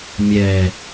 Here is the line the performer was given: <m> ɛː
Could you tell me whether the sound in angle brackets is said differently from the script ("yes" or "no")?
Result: yes